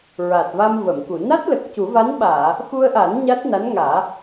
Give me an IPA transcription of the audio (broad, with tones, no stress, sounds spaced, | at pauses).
ɹ a˨˩ t̚ v a˧ m v ə˨˩˨ m k u˨˩˨ n a˦˥ t̚ l ə˨˩ k̚ c u˨˩˦ v a˧˥ n ɓ aː˨˩˨ | x u˧ ə̯ ʔ a˨˩˦ n ɲ a˦˥ t̚ n a˧˥ n ŋ aː˨˩˦